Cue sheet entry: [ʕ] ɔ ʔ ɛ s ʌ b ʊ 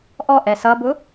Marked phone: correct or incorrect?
incorrect